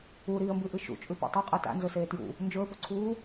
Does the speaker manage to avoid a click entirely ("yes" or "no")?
no